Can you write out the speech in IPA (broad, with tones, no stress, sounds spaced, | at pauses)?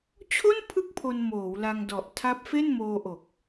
t͡ɕʰ o˥˩ n pʰ ɯ˦˥ k̚ pʰ o˧ n m oː˩˦ w l a˧ ŋ d ɔ˨˩ ʔ tʰ a˦˥ p̚ f e˥˩ n m oː˧ ʔ o˨˩ k̚